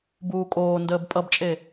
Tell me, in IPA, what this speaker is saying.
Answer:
buːkʼoː ndəːbpʼʌbt͡ʃʼe

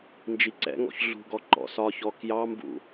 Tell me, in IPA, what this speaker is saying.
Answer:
nd͡ʒiǀɛ̰ŋɔ̰ç ɮṳɡɔ ǃɔ̰sɒçɔ kjɑmbṵ

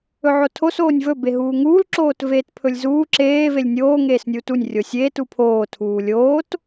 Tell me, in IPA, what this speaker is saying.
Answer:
ɵʕotʰos oːnʲvɵ beɦuːŋuːl ǁoːtveːtpʰɵlʲzuː ǁeː velʲnʲoː ŋeːsnʲuːtunʲ rʲosʲeːt upʰoː tʰuːlʲoːt

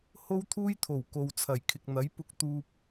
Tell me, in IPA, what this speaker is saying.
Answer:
ho˥wt̪ʰuː˥jt̪ʰo˨˩w ko˨wt͡sʰɐ˨˩jkʰɪ˨k̚n̪ɐ˨˥j pʊ˧k̚t̪uː˧p̚

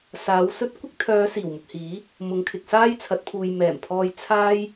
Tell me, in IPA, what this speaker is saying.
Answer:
saː˨˥wsɵ˥t̚ kʷɪ˥k̚t̪ʰœː˨˧ siː˨˩wmʊ˨k̚hiː˨˥ | mʊ˨˧ŋkʰɪ˨k̚saː˥jt͡sʰɐ˨˥t̚ pʰuː˨jmɛː˨˩mpʰɔː˧j t͡sʰaː˥j

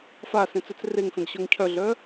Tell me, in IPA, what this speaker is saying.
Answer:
fa sẽt͡sœt͡sreŋfẽɡ ɕœŋcʰœɮœ

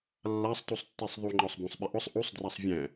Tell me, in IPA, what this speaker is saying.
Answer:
lːasˤtusˤtːesˤ ðˤuŋ͡ǃɔsˤ bũsˤɓɪʔʊsˤ ʔusˤdrasˤ vʲɛ̃

